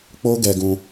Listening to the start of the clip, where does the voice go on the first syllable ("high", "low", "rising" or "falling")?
high